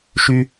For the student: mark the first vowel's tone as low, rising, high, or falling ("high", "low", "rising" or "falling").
high